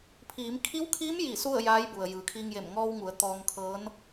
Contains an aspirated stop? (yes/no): yes